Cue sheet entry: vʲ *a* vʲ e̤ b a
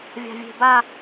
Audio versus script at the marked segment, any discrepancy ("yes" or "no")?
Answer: yes